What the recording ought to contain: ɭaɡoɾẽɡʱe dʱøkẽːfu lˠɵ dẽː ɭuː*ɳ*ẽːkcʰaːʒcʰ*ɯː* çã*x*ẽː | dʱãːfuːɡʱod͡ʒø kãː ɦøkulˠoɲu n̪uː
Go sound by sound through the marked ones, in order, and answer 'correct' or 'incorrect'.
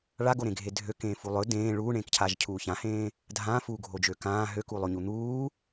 correct, incorrect: uː, incorrect: h

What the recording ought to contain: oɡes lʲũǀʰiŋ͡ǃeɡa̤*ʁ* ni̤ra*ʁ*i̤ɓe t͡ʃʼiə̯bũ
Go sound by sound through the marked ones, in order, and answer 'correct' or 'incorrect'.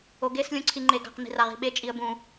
incorrect: q, correct

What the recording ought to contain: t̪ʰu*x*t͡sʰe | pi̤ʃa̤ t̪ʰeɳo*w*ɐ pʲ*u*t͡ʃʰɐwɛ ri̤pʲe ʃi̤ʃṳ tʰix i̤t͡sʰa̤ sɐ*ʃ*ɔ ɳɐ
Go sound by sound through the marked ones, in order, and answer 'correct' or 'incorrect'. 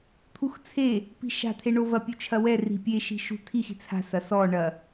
correct, incorrect: v, correct, incorrect: s

